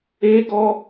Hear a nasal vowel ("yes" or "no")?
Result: no